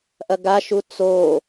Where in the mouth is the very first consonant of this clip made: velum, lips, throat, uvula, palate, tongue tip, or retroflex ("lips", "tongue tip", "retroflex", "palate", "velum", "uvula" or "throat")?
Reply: throat